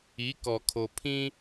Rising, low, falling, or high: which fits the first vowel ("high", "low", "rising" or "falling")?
rising